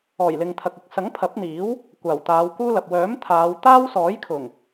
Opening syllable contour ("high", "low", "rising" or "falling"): low